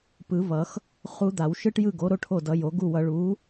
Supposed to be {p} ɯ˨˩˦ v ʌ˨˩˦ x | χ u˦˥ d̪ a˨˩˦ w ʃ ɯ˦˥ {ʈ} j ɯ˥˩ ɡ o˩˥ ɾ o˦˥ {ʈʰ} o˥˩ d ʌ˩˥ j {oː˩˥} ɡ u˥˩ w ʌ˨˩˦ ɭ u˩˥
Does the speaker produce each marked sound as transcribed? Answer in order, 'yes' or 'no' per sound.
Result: yes, yes, yes, no

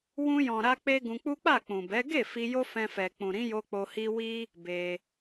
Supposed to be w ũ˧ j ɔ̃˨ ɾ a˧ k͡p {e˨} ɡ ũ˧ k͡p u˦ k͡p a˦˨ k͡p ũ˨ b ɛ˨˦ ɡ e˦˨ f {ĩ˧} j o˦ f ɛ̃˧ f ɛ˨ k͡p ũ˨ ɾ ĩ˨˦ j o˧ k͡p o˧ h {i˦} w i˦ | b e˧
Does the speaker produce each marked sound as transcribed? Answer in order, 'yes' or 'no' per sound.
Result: no, no, yes

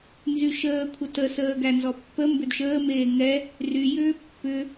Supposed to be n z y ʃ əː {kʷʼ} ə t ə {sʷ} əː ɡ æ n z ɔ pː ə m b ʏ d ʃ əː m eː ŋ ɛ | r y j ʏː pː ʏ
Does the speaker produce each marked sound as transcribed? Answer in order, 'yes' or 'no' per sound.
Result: no, no

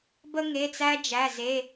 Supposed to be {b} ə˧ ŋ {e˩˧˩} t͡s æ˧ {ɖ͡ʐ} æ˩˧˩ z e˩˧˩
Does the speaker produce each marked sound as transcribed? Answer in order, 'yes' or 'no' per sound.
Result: yes, yes, no

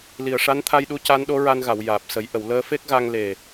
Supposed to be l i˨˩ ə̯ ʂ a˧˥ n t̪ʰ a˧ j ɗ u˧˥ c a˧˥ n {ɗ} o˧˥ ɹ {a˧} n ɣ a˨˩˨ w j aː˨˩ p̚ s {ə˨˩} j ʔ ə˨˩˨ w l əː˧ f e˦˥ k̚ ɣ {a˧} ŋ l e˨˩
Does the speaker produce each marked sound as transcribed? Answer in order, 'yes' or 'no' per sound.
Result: yes, yes, no, yes

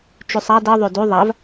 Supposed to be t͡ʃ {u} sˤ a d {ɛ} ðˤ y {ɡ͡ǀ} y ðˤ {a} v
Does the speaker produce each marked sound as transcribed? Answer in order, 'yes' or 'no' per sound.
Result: no, no, no, yes

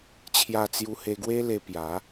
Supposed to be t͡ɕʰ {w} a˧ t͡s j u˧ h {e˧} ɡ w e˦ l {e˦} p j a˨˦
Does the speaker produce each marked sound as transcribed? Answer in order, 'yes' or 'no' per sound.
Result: no, yes, no

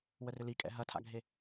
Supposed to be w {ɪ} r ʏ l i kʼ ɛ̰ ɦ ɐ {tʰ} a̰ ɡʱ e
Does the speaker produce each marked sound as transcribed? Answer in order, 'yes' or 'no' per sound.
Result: no, yes

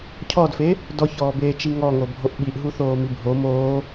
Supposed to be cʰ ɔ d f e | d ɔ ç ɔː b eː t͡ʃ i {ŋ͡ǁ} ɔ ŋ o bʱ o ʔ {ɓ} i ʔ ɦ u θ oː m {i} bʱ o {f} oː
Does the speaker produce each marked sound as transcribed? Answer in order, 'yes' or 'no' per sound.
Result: no, yes, yes, no

